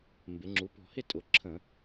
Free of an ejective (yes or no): no